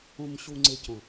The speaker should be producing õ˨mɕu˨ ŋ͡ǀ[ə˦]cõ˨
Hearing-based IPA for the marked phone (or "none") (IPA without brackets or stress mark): ɪ˦